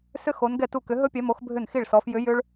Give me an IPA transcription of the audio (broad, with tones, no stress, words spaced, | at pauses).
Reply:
sʏ˥xo˧˥n ɡɛ˥˩tu˥˩kʏ˧˥ ɦɵ˥pʲɛ˧˥mo˧˥x bʱʏ˥˩nxi˥˩ɭsɔ˧˥f jʏ˧˥ jʏ˥ɭ